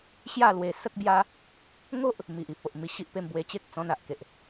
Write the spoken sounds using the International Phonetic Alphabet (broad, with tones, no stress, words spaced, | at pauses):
ɕja˥˧ lwe˧ sə˦k̚bja˦ | ŋo˦ʔ | mi˨ʔi˨p̚o˨ʔ mi˧ɕi˦ʔpe˥˧m bwe˧t͡ɕe˦k̚ t͡sɔ̃˧na˨ʔke˨ʔ